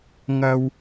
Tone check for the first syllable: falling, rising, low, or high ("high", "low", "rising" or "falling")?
high